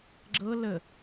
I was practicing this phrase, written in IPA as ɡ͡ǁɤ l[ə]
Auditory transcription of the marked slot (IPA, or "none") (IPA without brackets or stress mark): ə